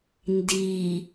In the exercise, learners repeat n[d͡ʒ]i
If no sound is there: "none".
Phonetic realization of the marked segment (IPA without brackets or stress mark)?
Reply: d